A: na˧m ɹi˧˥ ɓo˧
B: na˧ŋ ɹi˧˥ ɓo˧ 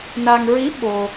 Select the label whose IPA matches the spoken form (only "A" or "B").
B